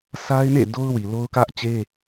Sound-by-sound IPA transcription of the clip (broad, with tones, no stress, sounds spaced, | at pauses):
s a˦ ɪ̯ n ḛ˦˨ d o˦ ʊ̯ w i˨ l o˦ ʊ̯ k ä˦ ʔ t͡ɕ e˦